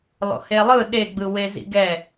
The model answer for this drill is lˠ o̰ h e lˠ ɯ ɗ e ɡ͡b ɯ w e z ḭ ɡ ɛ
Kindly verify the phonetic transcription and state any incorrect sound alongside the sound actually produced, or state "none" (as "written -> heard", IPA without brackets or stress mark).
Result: none